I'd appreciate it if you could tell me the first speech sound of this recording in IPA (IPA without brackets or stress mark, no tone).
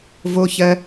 v